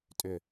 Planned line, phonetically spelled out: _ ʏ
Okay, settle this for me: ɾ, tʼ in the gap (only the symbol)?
tʼ